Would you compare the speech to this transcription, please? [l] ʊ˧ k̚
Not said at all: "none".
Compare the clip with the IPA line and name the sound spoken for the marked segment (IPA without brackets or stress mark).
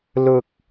l